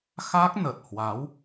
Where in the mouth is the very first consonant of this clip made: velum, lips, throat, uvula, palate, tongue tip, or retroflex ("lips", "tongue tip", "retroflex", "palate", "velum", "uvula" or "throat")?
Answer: velum